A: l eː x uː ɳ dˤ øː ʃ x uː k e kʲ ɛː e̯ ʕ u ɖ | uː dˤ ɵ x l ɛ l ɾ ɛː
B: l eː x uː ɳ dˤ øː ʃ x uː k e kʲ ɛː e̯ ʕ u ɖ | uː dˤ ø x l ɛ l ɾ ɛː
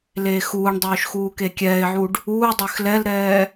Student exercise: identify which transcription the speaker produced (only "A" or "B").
B